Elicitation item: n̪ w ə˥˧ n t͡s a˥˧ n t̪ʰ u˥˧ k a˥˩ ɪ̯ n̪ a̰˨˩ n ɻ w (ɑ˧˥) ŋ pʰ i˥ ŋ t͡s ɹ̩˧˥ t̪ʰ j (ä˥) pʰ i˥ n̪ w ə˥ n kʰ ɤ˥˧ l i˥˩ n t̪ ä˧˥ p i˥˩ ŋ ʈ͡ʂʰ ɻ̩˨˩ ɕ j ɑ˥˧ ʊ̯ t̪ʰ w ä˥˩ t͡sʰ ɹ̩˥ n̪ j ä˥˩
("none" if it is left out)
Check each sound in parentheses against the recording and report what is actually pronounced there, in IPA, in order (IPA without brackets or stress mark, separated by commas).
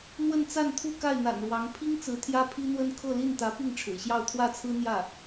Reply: ɑ˧˥, ä˥